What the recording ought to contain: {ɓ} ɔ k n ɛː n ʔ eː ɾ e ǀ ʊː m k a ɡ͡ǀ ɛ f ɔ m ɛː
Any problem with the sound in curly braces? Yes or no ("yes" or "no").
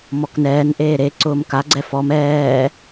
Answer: yes